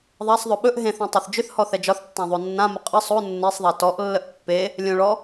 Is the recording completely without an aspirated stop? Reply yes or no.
yes